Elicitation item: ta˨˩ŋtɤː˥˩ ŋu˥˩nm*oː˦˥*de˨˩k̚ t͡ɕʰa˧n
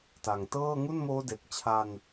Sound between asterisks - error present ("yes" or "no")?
no